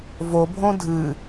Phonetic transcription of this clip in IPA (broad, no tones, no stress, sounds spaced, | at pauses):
v o bʱ õ dʱ ɨ